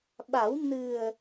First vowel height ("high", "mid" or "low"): low